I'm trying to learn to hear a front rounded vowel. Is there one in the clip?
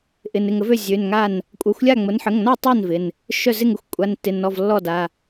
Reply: yes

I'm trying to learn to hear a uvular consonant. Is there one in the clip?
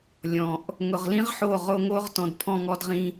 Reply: yes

